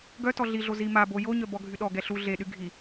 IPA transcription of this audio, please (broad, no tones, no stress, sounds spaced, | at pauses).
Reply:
ɡ œ t ɔ ɮ i ɮ o z i m a b o j o ɲ œ b ɔ ɡʱ y ɗ ɔ ɡ ɛ ɬ u ɮ e ɗ y ɡʱ i